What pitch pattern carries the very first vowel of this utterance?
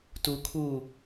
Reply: low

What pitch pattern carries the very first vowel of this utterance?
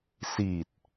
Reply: low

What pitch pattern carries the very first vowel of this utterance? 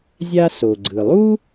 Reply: high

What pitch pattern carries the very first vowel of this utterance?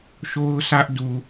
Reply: high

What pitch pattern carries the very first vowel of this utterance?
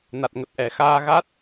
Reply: low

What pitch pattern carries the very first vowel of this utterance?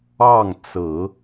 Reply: falling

